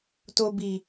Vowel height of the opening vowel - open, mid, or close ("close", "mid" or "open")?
mid